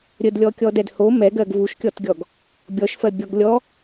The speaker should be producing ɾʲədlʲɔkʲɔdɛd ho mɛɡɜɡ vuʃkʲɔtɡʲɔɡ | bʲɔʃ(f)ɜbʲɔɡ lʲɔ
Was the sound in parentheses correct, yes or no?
yes